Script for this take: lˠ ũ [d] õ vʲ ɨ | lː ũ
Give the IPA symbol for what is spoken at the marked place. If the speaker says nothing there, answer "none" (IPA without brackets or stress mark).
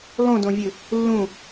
d